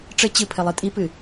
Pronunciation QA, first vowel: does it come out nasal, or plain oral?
oral